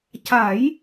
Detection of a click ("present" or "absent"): absent